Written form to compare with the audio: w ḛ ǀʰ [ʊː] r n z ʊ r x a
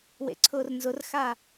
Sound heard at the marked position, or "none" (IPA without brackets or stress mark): ʊː